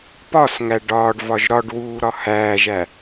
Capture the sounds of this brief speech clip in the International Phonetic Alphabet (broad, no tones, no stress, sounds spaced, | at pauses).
p ɒ s ŋ æ ɖ ɒː ɖ v ɒ ʒ ɾ ɒ ɖ w uː ɾ ɒ h æː ʒ æ